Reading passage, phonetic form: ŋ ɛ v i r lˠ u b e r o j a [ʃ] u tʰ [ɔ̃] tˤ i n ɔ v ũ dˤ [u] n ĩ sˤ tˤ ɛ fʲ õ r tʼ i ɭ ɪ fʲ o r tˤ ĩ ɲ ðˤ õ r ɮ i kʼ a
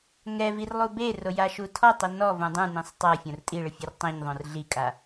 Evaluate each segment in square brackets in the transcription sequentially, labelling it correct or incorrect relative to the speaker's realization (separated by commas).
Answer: correct, incorrect, incorrect